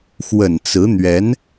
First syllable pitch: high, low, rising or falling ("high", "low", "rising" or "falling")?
low